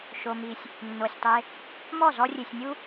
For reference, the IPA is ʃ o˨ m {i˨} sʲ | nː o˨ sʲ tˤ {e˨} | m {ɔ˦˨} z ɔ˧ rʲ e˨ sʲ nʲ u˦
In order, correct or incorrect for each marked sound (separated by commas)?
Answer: correct, incorrect, correct